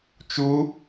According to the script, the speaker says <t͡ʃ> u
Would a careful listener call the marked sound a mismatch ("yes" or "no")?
no